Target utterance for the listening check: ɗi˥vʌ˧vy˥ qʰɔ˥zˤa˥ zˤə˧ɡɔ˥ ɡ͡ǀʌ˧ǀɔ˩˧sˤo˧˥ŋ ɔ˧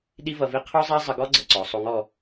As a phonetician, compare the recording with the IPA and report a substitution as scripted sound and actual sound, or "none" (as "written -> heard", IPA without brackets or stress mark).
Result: y˥ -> i˥